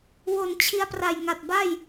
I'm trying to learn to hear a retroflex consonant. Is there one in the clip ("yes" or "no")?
no